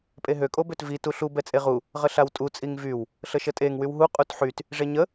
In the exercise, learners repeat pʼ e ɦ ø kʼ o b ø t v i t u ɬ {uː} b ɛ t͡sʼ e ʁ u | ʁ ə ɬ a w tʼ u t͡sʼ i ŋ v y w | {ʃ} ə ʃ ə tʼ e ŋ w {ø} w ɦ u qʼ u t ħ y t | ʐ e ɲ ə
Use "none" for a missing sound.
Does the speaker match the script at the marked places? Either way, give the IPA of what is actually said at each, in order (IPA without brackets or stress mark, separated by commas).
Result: u, ɬ, y